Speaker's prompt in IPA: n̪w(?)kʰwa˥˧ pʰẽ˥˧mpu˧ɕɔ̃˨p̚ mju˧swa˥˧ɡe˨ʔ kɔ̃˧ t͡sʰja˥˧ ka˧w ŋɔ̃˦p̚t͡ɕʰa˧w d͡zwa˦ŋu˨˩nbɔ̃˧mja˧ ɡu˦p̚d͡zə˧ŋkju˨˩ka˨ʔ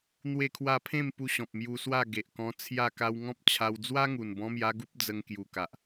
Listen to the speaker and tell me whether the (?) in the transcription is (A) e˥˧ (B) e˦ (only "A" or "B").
A